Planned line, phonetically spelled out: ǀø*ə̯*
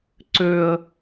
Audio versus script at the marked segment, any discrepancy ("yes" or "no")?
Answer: no